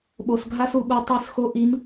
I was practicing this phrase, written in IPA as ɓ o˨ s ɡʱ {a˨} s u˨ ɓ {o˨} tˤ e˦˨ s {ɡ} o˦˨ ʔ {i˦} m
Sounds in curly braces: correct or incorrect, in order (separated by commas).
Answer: incorrect, incorrect, incorrect, incorrect